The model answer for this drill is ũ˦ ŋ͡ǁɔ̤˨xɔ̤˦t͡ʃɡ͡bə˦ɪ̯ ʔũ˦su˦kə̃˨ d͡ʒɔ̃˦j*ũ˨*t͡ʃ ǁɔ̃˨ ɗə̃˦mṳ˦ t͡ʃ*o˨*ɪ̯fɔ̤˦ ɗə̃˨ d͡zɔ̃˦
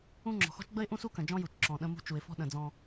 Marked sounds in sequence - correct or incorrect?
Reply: incorrect, incorrect

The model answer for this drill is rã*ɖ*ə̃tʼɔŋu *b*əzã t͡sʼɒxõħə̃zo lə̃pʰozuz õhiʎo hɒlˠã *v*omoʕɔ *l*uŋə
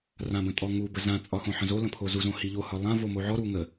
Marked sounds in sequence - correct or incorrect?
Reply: incorrect, correct, correct, incorrect

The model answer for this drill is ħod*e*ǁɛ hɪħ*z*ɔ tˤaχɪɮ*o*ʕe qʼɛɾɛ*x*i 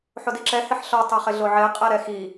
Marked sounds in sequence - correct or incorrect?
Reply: incorrect, incorrect, correct, correct

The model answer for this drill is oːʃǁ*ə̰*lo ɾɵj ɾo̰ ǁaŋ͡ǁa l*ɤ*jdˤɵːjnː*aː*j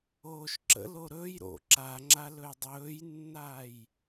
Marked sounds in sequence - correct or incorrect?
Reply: correct, incorrect, correct

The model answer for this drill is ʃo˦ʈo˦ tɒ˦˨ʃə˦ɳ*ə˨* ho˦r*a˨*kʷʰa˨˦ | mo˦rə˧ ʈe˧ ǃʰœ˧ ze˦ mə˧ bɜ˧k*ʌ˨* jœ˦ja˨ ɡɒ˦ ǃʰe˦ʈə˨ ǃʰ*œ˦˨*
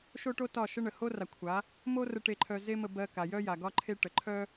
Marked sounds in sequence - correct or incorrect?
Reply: correct, correct, incorrect, incorrect

